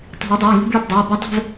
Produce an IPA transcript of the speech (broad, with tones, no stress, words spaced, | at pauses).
tˤi̤˨˩˦o̯dˤə˞˩˧˩e̯ ŋi̤˧˥˧bɭi˦˨b dˤə˞˩˧˩e̯ba˦˥ dˤɛ̤˦˨v